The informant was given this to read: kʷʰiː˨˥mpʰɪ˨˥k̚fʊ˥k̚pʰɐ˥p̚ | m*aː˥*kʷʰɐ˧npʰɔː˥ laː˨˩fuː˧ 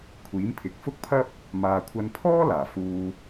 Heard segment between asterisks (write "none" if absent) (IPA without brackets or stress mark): aː˨